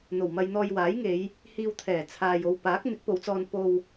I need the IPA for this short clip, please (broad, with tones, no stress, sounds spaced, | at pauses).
n̪ o˨˩ w m ɐ˧ j n̪ ɔː˧ j w aː˨˥ j ŋ e˨˧ j | h iː˧ w t̪ʰ ɛː˨˩ t͡sʰ aː˨ j o˧ w p aː˨˥ k̚ n̪ ɪ˨˥ k̚ p o˨˧ w t͡s ɔː˧ n p o˧ w